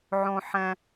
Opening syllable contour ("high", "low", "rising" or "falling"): high